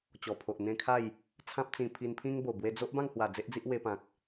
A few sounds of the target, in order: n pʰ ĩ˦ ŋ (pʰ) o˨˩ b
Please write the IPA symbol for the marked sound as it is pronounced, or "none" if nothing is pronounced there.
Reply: b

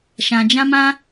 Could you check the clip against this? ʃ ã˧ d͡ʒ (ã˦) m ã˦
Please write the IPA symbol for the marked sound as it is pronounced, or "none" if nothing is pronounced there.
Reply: ã˦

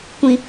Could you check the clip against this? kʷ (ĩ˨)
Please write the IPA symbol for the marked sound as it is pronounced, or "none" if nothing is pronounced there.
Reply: ĩ˨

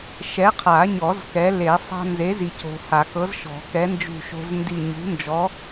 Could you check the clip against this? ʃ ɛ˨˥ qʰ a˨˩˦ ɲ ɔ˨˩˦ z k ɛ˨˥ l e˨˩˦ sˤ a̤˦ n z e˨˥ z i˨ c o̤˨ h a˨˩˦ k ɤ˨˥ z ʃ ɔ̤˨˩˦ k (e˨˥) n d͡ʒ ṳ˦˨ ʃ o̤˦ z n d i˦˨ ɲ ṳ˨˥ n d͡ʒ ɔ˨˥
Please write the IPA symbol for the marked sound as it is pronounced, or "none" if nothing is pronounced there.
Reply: ɛ˨˥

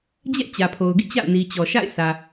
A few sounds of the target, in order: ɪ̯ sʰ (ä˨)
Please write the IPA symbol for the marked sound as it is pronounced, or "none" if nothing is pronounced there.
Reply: ä˨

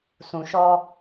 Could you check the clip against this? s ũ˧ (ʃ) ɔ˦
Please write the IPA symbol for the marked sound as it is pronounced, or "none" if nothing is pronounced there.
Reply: ʃ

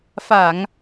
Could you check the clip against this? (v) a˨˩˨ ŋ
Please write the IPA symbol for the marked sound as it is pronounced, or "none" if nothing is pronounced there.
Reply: f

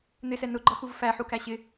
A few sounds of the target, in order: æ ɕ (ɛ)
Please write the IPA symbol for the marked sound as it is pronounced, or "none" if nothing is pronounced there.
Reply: ɪ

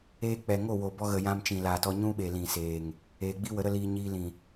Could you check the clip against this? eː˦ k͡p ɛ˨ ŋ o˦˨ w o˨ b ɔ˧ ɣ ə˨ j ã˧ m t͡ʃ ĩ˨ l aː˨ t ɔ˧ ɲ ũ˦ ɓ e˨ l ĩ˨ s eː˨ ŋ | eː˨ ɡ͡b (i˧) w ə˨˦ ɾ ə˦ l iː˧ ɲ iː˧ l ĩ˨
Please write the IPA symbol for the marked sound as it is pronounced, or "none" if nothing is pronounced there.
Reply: i˦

